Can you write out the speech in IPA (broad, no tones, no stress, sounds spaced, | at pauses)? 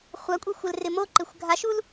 χʷ a kʷʼ e xʷ ɛ l r ɪ m o ǃ ɪ xʷ ɡʱ a ʃ u l